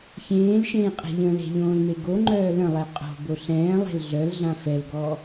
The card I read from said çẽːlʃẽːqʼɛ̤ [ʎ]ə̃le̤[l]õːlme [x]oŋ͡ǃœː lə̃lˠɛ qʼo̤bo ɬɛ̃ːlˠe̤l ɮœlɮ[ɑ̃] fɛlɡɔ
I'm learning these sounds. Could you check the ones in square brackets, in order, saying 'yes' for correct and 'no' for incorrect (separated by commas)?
yes, no, no, no